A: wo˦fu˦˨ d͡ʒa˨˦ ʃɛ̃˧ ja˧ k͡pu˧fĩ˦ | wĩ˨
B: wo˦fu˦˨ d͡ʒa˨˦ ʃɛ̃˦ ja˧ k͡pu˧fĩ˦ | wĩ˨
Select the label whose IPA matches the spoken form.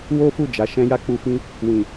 B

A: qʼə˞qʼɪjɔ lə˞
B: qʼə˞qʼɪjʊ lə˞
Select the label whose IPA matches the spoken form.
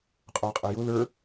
B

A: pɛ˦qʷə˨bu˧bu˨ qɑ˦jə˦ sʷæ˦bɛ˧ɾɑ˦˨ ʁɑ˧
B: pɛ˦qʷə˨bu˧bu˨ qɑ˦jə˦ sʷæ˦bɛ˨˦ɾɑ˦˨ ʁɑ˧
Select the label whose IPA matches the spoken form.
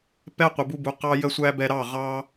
A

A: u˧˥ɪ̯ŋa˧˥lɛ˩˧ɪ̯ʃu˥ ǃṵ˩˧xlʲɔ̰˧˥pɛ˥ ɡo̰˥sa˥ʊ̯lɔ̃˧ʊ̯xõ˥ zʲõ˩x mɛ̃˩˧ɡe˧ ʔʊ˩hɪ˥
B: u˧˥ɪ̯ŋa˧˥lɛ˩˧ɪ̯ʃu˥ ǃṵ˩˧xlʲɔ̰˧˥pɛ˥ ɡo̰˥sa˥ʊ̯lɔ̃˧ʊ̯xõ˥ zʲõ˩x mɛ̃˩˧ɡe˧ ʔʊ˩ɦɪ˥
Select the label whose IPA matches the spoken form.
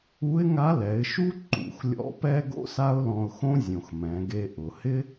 A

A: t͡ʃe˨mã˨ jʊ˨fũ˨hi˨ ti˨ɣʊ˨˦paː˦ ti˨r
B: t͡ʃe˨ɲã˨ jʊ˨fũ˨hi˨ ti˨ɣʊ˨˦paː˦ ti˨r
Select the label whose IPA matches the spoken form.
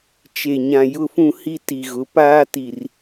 B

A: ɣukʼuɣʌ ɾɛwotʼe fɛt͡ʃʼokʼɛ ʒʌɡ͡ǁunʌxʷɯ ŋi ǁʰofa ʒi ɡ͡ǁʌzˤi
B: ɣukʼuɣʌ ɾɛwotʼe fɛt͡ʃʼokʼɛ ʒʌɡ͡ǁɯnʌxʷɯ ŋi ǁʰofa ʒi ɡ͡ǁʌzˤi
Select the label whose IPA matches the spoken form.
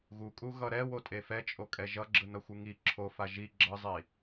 B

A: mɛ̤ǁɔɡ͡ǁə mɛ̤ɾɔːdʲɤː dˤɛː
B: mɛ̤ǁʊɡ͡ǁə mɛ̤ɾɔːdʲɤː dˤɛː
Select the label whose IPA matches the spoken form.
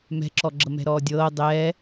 A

